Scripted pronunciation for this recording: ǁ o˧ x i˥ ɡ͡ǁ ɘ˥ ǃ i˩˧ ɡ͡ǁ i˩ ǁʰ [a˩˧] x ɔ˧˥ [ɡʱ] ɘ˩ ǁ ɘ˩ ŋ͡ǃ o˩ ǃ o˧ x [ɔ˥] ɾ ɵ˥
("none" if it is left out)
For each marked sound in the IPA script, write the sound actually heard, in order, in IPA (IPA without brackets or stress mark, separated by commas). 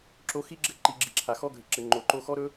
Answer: a˩, ɡʱ, ɔ˥